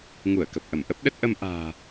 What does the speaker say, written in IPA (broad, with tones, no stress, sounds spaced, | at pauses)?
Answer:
ŋ u˧˩ ə̯ k ə˨˩ p̚ ʔ ə˧˩ m ʔ ə˦˥ p̚ ɗ ə˦˥ t̚ ʔ ə˧ m ʔ a̤ː˨˩